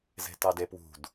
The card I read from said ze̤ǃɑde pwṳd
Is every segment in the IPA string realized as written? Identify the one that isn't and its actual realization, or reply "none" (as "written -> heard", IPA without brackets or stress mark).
ǃ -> t